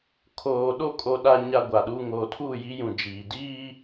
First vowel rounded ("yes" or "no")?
yes